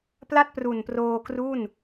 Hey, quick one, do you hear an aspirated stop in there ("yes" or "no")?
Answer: no